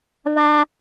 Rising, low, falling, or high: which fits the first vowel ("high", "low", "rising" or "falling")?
high